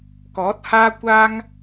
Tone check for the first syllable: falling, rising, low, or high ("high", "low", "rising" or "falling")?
rising